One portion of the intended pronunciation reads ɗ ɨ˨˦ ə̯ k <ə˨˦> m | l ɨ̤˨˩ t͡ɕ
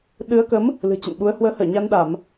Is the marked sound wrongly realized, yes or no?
no